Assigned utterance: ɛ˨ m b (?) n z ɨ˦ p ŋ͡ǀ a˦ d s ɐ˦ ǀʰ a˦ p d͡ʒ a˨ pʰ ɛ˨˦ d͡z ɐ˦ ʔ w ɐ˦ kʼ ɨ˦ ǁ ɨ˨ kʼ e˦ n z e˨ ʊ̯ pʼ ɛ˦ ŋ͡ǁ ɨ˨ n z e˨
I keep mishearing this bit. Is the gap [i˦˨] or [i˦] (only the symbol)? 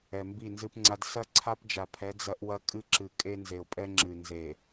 i˦˨